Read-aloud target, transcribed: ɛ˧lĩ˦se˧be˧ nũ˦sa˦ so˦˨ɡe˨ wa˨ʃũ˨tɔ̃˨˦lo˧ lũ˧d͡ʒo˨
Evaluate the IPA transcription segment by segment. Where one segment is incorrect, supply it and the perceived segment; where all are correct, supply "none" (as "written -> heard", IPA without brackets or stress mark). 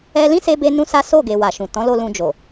none